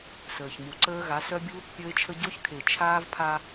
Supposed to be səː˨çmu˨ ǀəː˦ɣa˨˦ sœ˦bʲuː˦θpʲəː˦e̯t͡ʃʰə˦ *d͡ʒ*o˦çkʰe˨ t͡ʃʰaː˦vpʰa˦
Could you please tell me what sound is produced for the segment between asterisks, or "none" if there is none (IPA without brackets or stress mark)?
ɟ